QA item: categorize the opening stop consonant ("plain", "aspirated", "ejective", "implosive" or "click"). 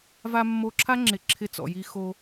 click